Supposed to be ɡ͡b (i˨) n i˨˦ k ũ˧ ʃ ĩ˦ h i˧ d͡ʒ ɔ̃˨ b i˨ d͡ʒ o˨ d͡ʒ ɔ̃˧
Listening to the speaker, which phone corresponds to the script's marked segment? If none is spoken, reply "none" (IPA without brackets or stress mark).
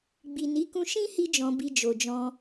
i˨